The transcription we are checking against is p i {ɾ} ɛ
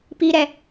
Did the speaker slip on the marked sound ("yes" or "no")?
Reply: no